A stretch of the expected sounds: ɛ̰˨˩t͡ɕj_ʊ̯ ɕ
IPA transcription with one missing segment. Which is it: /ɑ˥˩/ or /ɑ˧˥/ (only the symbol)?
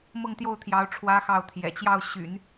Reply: ɑ˥˩